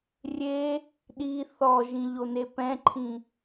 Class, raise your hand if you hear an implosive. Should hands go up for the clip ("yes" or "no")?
yes